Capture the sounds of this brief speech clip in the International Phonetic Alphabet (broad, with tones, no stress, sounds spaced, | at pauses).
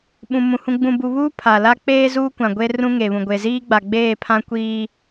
ɓ ũ˨ m ũ˨ h ũ˨ ɡ͡b ũ˨ b u˨ β uː˦ pʰ a˨ l a˦ k͡p eː˦ z uː˦ kʷ ã˨ ɡʷ e˦ r ũ˦ ŋ e˨ β ũ˨ ɡʷ e˨ z iː˦ ɡ͡b a˨ ɡ͡b eː˦˨ pʰ ã˦ kʷ iː˨